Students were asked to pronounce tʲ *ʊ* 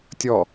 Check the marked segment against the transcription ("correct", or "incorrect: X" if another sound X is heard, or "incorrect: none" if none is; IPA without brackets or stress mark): incorrect: ɔ